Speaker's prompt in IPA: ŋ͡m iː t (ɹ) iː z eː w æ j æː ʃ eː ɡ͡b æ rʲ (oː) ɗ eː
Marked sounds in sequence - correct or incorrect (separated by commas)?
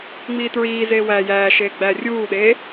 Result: correct, incorrect